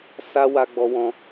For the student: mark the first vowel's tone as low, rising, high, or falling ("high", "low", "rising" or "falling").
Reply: high